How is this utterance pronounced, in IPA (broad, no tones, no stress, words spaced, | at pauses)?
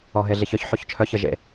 ɔɦeɮiçœç ħoçt͡ʃʰœç əʒḛ